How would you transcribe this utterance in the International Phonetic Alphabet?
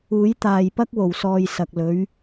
uː˨˥ j t̪ aː˨ j p ɐ˥ k̚ w o˨˩ w s ɔː˨ j s ɐ˨ k̚ l ɵ˨˥ ɥ

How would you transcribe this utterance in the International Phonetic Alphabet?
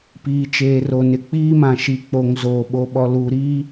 p iː˨ t͡ʃ eː˨ r o˨ n ɪ˨ k͡p iː˦ m ã˨ ʃ i˨ k͡p o˨ ŋ z oː˨ ɓ o˨ ɓ ɔ˨ l uː˨ ɾ iː˦

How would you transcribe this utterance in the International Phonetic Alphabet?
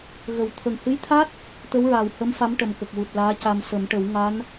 ɣ ə˨˩˦ w t̪ʰ ə˨˩ ŋ h ɨ˧˥ j t̪ʰ a˦˥ t̚ | t̪ ə˧˥ w ɹ aː˨˩ w h ə˧˥ m f a˧˥ m ʈ ə˨˩ m k ə˨˩ k̚ w u˨˩ t̚ l aː˧˥ c a˧ m s ə˨˩˦ m ʈ ə˨˩˦ w ŋ a˧˥ n

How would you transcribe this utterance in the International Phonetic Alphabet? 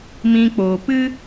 m ĩ˧ k͡p oː˨ p ɨ˦

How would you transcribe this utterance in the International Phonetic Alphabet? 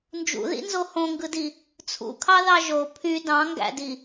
n d͡ʒ ṵ ð ḭ n z o h õ ŋ ɡ ɯ d i | t͡sʰ ṵ kʰ ɑ ð ɑ ʒ o pʰ y d ɑ̃ ŋ ɡ æ̰ d i

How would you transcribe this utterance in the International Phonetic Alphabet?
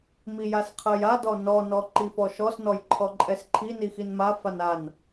m i j a s qʰ ɜ j a d ɔ n ɔ n ɔ ǃ i f ɔ ʃ ɔ s n ɔ j ǃʰ ɔ ǃʼ ɛ s ǃʰ i n i x i n m a f a n a n

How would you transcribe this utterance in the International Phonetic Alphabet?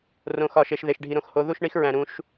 r õ˨ x ɒ˨ ʃ e˨ ʃ ð e˨ ʃ ɖʱ i˨ ɾ õ˧ x h o˨˦ ð u˦ ʃ ɳ i˦ x ɹ æ̃˨ ɾ ũ˨˦ ʃ

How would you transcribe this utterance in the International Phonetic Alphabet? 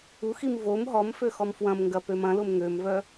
u x i m v o m ɦ ɔ m f ø x ɔ m f w ɐ̃ m ŋ ɡ ɐ p ø m ɐ̃ l ʊ m ŋ ø m v œ

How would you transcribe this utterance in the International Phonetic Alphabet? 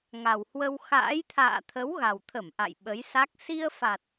ŋ a˨˩ w h w ə˧ w x a̰ː˧˥ j t̪ʰ a̰ː˧˨ t̪ʰ ə˨˦ w ɣ a˨˩ w t̪ʰ ə˧˩ m ʔ a̰˧˨ j ɓ ə˨˦ j s a˦˥ k̚ s i˧ ə̯ f a˨˩ t̚

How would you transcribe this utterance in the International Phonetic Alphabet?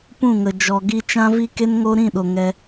p ũ˦˨ ŋ ə˨ d͡ʒ ɔ˨ ɡ i˧ t͡ʃ ã˦ v i˦ k e˦ n ŋ o˦ ɾ ĩ˦˨ ɗ o˨ ŋ ɛ˦

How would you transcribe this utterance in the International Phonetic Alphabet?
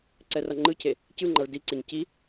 ǀ ɛ r ʌ ŋ͡ǃ ɯ cʰ e | c ɯ ŋ͡ǃ a ɭ d i ǀ e ɲ c i

